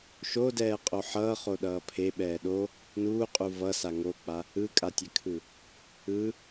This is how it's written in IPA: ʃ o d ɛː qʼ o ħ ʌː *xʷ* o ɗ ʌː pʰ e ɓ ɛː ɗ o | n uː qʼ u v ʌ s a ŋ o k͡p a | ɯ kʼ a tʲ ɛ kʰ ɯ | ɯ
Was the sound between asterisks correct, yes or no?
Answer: no